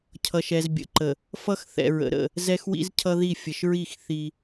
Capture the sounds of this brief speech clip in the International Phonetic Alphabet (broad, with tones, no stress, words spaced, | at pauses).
cʰʌ˨ʃɛ˨z bʲə̰˨ǃə˨ | fʌ˦xθɛ̰˨ɹə̰˨ɾə̰˦˨ | zɛ˦xwḭ˦zcʰʌ˦ði˦˨ fʲə˨ʃɹi˦˨x θi˦